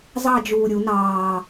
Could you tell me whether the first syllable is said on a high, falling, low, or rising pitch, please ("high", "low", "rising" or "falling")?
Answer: falling